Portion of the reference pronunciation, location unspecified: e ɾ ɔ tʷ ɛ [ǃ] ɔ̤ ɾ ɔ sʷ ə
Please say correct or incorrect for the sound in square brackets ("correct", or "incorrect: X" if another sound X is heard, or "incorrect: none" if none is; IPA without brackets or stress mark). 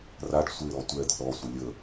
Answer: incorrect: d̪